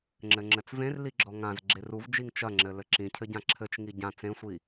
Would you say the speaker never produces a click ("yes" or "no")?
no